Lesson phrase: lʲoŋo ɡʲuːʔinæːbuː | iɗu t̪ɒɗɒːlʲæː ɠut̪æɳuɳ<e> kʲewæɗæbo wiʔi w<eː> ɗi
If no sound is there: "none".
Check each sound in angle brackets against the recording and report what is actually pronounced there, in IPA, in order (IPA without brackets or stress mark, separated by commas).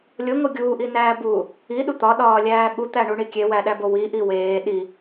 i, eː